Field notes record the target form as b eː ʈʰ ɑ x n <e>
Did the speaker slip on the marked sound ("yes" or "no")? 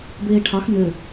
yes